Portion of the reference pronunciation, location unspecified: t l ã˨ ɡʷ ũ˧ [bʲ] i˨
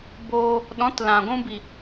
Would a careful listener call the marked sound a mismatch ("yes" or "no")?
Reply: yes